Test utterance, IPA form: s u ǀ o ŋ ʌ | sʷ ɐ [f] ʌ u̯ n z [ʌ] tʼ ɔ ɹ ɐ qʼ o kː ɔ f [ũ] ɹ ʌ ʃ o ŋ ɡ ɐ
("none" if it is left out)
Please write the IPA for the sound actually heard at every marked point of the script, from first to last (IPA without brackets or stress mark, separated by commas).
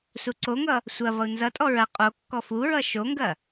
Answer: v, ʌ, u